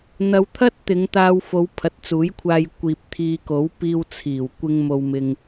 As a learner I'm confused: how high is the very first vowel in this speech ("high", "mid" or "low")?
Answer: low